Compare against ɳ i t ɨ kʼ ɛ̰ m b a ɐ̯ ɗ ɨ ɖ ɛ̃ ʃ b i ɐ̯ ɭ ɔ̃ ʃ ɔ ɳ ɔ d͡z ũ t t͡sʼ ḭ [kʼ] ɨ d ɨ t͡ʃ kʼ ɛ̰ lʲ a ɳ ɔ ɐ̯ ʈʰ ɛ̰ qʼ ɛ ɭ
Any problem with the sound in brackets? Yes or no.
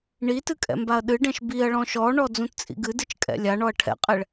yes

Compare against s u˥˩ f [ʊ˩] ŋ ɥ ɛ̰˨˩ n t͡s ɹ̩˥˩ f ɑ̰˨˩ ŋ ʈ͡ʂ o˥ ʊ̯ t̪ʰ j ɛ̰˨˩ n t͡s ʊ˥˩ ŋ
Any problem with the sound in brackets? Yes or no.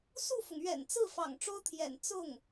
no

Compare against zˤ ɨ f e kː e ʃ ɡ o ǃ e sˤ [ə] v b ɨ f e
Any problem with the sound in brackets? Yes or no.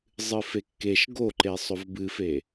yes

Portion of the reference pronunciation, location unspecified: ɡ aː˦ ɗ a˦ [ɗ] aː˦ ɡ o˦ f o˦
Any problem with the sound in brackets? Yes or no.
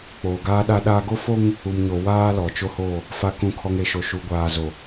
no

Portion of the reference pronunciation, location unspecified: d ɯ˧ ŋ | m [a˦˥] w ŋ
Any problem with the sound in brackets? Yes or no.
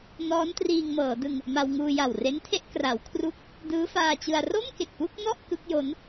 yes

